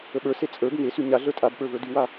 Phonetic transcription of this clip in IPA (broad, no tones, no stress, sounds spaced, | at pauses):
ə ɓ ə˞ s e t͡sʼ ə˞ b ŋ e s y ɲ a ɮ ə˞ tʼ a b ɓ ə˞ v ə˞ d y w a